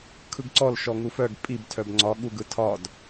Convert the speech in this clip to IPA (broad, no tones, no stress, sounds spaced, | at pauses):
kʰ ɯ ɡ ǀ ɔ l ʃ ɔ ŋ u f œ ɡ pʼ i b tʰ œ b ŋ͡ǀ ɒ ɠ u ɡ ɯ tʰ ɒ d